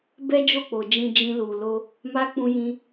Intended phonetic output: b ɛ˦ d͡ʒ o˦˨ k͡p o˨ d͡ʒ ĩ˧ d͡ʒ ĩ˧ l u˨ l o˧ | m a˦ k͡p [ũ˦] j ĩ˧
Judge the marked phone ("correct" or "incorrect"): incorrect